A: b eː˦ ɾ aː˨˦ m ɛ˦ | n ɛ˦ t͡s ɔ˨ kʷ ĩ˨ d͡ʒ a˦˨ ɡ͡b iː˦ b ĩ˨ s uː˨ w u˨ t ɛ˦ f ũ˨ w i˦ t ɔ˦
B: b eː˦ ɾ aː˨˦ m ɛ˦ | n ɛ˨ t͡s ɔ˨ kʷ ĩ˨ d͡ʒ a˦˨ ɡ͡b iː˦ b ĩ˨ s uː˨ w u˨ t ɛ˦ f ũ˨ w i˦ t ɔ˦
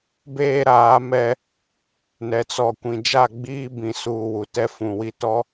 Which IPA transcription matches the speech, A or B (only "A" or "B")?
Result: B